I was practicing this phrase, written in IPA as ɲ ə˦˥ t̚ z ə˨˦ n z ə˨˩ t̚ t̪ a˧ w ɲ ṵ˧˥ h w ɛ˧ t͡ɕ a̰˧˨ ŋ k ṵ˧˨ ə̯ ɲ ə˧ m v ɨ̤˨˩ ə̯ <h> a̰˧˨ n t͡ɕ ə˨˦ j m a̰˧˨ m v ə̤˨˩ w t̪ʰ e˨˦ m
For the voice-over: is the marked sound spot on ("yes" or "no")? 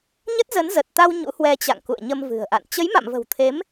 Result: no